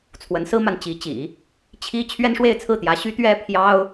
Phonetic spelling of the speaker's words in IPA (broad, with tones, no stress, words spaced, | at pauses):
t͡sʰwə˧˥nsɹ̩˥ma˨n t͡ɕi˧˥t͡ɕḭ˨˩˦ | t͡ɕʰi˥ t͡ɕʰɥɛ˥nʂwe˥˧ɪ̯t͡sʰɹ̩˥˩t̪jä˧˥ ɕy˥t̪ɥɛ˥ pʰjɑ˥ʊ̯